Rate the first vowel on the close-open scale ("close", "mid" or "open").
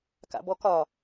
open